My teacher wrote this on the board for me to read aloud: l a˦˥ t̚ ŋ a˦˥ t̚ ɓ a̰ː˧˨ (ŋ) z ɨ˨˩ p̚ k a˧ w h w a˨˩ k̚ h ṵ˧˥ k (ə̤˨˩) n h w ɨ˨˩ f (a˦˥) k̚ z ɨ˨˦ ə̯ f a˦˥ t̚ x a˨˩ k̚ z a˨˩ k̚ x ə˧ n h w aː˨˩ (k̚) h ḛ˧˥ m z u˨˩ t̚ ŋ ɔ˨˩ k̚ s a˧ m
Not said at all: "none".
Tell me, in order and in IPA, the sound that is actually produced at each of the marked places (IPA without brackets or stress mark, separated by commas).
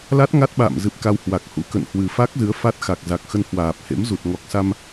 m, ə̰˧˨, a˦˥, p̚